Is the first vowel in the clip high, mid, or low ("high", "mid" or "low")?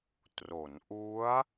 mid